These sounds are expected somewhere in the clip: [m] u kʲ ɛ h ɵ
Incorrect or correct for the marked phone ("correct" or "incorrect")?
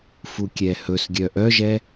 incorrect